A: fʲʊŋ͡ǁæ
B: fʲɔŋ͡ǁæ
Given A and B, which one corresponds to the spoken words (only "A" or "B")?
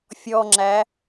B